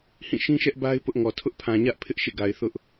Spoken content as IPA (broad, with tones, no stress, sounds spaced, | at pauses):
h ĩ˦˨ ʃ ĩ˦ ʃ ɛ˦ ʔ b a˦ ɪ̯ p ʊ˦ ʔ ŋ ɔ˨ tʰ ʊ˦ ʔ pʰ ã˨ ɲ ä˦ ʔ pʰ ɪ˦ ʔ ʃ ḛ˦˨ ɡ a˨ ɪ̯ θ ʊ˦ ʔ